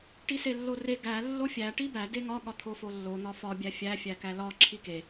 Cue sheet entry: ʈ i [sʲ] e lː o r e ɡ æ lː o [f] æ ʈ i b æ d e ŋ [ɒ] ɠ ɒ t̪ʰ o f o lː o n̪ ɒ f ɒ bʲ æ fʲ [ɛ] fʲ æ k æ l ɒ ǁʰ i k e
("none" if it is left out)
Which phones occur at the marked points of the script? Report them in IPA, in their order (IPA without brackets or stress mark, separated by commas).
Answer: s, fʲ, ɒ, æ